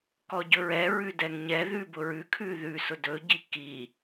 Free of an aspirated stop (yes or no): no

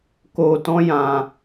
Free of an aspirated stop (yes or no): yes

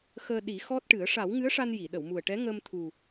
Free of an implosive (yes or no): no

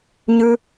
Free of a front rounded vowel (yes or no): yes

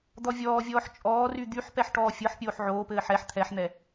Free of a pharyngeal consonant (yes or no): no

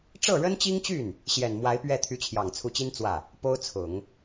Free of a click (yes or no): yes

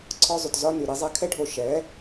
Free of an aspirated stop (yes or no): no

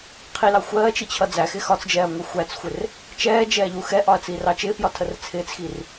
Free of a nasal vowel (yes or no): yes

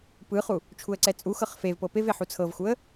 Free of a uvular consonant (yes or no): no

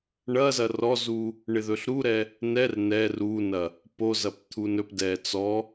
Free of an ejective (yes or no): yes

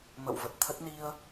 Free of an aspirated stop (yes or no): no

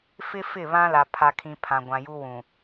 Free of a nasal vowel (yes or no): no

